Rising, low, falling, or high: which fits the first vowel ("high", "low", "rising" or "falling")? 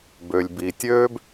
low